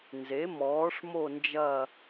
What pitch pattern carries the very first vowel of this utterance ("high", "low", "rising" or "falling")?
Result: rising